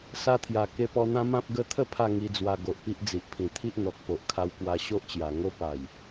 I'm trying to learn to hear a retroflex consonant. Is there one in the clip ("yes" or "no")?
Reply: no